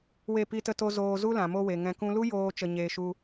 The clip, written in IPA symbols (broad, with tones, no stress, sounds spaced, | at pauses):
w e˦˨ p i˦ t ə˦ t o˦ z oː˧ z u˦ l ã˨ m o˧ w e˨ ŋ ɛ̃˧ k ũ˦ l u˦ j oː˧ t͡ʃ ə˧ ɲ eː˧ ʃ u˧